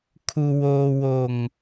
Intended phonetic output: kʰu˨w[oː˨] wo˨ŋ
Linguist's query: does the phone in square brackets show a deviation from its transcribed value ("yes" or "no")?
no